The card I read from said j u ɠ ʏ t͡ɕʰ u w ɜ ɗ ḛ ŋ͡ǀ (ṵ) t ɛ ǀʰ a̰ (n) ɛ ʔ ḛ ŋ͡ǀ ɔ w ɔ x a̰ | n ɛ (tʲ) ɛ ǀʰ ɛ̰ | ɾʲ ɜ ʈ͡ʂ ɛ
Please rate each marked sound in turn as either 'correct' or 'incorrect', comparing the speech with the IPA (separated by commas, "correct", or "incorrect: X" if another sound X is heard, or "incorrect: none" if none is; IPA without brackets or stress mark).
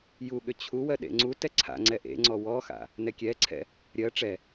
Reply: incorrect: u, incorrect: ŋ͡ǀ, incorrect: kʲ